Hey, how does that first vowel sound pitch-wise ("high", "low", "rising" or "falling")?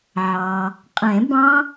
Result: low